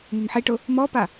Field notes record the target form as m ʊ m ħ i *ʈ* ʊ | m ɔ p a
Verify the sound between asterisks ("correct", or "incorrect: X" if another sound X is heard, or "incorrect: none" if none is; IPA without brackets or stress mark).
correct